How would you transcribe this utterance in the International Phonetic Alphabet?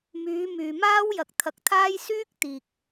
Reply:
myː˨˧ myː˨maː˥wjɐ˨k̚ t̪ʰɐ˧k̚t̪ʰaː˥j syː˥k̚t̪iː˨k̚

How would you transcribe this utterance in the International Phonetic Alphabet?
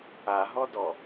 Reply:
aɦɔdɔ

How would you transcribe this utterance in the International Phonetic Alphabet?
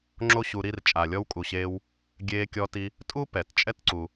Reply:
ŋ͡ǁo˥ɕu˧ ɾi˧r t͡ʃʼa˩lʲɔ˧wkʼu˩ɕeː˧w | ɡʲeː˧kʲɔ˧ti˧ | tʼu˥ pɛ˩t t͡ʃʼɛ˥tǀu˩

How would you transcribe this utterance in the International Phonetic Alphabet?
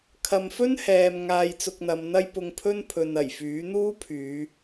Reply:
kʰɐ˧m fɵ˥nhɛː˨m ŋaː˧jt͡sʊ˧k̚n̪ɐ˨˧mn̪ɐ˥j pʊ˧ŋpʰɵ˥npʰɵ˨n ɐ˨˩jfyː˨˥n̪uː˥ pʰyː˨˧

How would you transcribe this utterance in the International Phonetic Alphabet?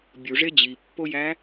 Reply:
bʲuʐe d͡ʑipːojæ

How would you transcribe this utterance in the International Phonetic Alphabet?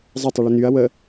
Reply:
zˤɐtˤə ɭʏnyɐ̯ wə

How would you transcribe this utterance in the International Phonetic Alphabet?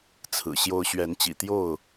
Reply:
t͡sʰɹ̩˨˩ɕjo˦ʊ̯ ɕɥɛ˨˦nt͡ɕḭ˨˩t̪jo˥˨ʊ̯

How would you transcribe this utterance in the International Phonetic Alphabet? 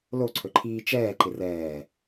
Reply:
loǀʰɵǃʰiː t͡ʃɛːǃɪ rɛː

